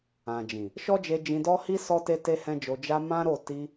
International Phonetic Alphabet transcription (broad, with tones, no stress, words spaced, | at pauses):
ã˨d͡ʒĩ˨ | ʃɔ˦d͡ʒe˧ d͡ʒĩ˧dɔ˦hi˦ sɔ˦te˦ te˦hɛ̃˦d͡ʒo˧ d͡ʒa˧ mã˦ɾo˦˨ ti˧